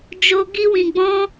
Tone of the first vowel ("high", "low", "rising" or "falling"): high